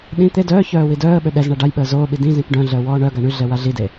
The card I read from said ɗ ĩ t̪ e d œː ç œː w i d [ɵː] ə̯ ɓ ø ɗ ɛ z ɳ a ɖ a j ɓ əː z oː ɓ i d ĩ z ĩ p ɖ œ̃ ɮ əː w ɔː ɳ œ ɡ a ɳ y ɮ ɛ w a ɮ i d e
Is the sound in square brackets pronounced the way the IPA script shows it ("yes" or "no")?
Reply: no